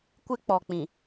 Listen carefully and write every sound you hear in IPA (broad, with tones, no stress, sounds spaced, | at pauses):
kʷ ɪ˦ k͡p ɔ˨ k͡p ĩ˨